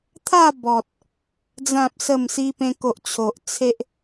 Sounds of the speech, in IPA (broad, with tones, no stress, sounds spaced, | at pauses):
t̪ʰ a˥˧ b ɔ˨ t̚ | d͡z ã˨ p̚ s ə˨˩ m s i˧ p ẽ˧ k o˨ ʔ t͡ɕʰ o˨ ʔ t͡sʰ e˦ ʔ